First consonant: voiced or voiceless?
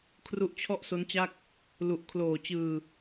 voiceless